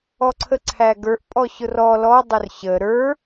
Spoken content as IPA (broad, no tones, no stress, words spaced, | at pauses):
ɔǀʰəǀʰæɡə˞ʔ pʼɔɕʊrɔ lɔ dˤʊrɕə ɾə˞